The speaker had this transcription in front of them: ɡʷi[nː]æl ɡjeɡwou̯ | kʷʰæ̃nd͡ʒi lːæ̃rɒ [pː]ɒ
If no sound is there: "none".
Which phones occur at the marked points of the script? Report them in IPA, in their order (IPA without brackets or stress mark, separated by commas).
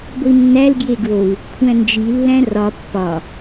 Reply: nː, pː